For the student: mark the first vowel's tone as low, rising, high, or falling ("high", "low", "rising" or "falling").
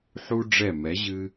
high